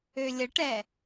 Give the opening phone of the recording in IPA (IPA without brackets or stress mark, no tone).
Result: ø